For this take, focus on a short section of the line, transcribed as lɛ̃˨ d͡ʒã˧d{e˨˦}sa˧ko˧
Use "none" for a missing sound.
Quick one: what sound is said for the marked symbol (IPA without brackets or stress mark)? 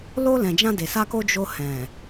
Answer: e˨